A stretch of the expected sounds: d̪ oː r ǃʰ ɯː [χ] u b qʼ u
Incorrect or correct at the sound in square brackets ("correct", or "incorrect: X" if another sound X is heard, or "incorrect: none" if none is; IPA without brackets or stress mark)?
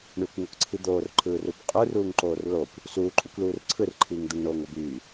incorrect: r